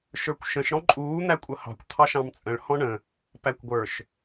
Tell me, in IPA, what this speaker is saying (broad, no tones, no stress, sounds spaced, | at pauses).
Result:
ʃ ə˞ kʷ ʃ ə̃ ʃ ɽ ɔ̃ ǃʼ uː n̪ æ kʷʼ ʌ h ɑ̤ kʷ t̪ʰ ɑ ʃ ɑ̃ m t͡sʼ ə̃ ɭ h ɔ̃ ɳ ə̃ | p æ kʷ ɡʷ ə˞ ʃ